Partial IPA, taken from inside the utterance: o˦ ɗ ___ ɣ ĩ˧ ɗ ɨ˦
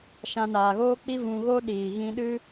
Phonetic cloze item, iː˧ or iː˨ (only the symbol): iː˨